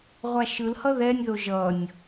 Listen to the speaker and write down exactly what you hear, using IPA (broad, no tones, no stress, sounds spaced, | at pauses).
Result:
ʁʷ a ʃ ɯ l h ʌ ð ɛ nʲ ð o ʒ ʌ nʲ